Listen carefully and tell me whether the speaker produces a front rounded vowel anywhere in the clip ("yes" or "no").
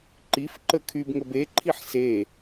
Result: yes